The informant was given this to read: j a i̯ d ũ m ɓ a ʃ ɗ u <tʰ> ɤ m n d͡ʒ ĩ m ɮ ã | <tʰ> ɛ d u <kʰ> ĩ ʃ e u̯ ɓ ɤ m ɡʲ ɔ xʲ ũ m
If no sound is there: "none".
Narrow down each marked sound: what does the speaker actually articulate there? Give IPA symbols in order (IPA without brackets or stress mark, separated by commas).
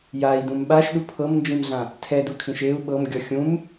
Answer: pʰ, tʰ, kʰ